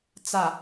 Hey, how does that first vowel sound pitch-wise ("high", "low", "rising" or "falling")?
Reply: low